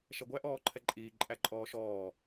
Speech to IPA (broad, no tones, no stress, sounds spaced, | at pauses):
ʃ ɛ ɡʷ æ ʔ ɔː ǃʰ ɛ ǃʼ iː ǃʼ æ ǃʼ ɔː ʃ ɔː